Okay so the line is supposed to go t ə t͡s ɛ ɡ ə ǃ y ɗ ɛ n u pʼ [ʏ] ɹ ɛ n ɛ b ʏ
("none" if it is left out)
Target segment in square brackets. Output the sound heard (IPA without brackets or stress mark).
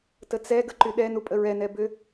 ə